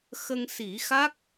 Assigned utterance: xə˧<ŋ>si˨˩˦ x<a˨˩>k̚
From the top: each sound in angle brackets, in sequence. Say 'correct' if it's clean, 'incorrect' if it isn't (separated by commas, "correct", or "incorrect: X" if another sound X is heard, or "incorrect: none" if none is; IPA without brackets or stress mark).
correct, incorrect: a˦˥